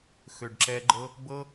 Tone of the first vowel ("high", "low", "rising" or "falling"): low